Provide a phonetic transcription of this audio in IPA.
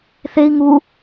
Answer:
θ e i̯ ŋ u

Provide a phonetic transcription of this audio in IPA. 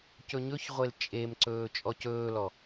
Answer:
c ɵ ɲ ɵ ç ʁʷ e l t͡ʃʼ e m ǀ ɵː t͡ʃʼ ɔ c ɵː l ɔ

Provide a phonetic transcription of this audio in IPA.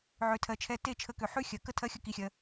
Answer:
ʕ ø˨ tʰ ɜ˨ t͡ʃʰ ɛ˧ t e˦˨ t͡ʃʰ ə˨˦ k ø˨ ħ ʉ˦ xʲ ɜ˨ k ə˦ tʰ ɜ˦ xʲ ə˦ k i˧ xʲ ɜ˧

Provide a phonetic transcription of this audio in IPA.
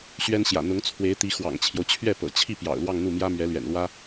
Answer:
ɕ ɥ ɛ˥ n ɕ j ä̰˨˩ n̪ ʊ˧˥ ŋ t͡sʰ w e˧˥ ɪ̯ t̪ i˧˥ x w ɑ̰˨˩ ŋ t͡ɕʰ j o˦ ʊ̯ t͡ɕʰ ɥ ɛ˥˩ p ɤ̰˨˩ t͡ɕʰ i˥˩ p j ɑ̰˨˩ ʊ̯ l w ɑ˥˧ ŋ n̪ u˥˩ m j ä˥ m ɥ ɛ˧˥ l ɥ ɛ̰˨˩ n l w ä˥

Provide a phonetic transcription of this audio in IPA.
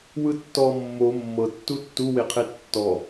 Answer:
w ɯ tː ɔ mː o mː ɤ tː u tː u w e qʰ e tː ɔ

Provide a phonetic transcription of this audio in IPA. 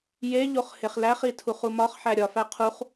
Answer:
j e ʎ o χ h e χ l æ χ i tʰ u χ u m ɒ χ ħ æ ɾʲ ɒ f æ qʰ u χ

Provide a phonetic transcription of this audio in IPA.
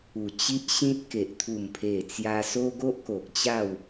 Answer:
u˨˩ t͡ɕ i˦ ʔ ɕ ĩ˦ t̚ k e˨ ʔ t̪ʰ u˨˩ m pʰ e˨˩ t͡s j a˧ s o˦ ɡ o˦ ʔ k o˨ k̚ t͡ɕ a˥˧ w

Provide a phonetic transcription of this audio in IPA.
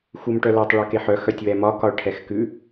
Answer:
x u m ʈ œ l o tˤ ɭ u k e ħ œ x œ tʲ w ɛ m ɒ k ɒ ɭ ʈʰ ɛ x k ʉ

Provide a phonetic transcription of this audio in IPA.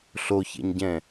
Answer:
ɬ o ç ḛ ɲ ɟ ɛ̃

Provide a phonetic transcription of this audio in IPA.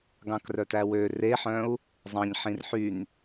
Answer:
ɡ ɑ̃ k r œ t æ w ø r e ħ œ̃ u̯ | zˤ ɑ̃ ɲ ħ ĩ r ħ y n

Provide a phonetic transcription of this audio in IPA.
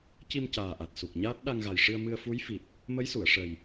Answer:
c i˧ m c aː˨˩ ʔ a˨˩ t̚ s u˨˩ k̚ ɲ aː˦˥ t̚ ɗ a˧ ŋ ɣ a˨˩ j ʂ ɨ˧ ə̯ m ɨ˧ ə̯ f u˧˥ j f i˨˩ p̚ | m ə˧˥ j s u˨˩˨ ə̯ ʂ ə˨˩ j

